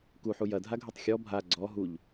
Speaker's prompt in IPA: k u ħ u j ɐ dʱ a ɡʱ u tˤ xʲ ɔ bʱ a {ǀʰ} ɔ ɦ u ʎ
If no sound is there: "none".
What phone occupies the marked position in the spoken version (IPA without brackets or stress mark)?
ɡ͡ǀ